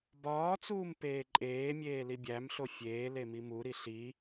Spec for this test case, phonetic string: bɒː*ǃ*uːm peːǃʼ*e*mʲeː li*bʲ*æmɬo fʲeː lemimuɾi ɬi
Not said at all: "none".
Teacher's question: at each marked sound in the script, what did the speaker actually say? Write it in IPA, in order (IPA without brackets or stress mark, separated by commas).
t͡s, eː, bʲ